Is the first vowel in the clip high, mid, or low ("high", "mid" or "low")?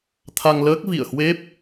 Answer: low